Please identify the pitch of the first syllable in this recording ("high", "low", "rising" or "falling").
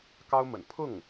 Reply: high